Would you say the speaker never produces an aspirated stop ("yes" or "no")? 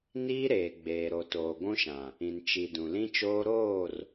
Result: yes